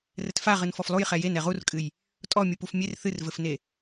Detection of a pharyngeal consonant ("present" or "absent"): absent